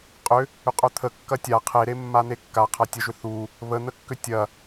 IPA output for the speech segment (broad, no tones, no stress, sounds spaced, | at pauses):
qʼ ʏ | ʏ qʼ œ t̪ʰ ə kː ɐ tʲ a qʰ e ɾ e mː a n̪ e kː a qʰ a tʲ ə ʒ ʏ θ u | β ə n̪ ə kː ø tʲ ɐ